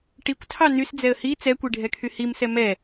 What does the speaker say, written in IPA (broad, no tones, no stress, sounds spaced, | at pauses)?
ʈ i kʷ tʰ ɑ n y s d͡z ɛ ə̯ h i t͡s ɛ kʷ i ɖʱ ɛ kʰ y h i m s ɛ m ɛ